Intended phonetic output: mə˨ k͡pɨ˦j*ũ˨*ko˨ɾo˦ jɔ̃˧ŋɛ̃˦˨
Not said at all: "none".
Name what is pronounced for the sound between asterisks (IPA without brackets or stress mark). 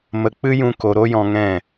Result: ũ˧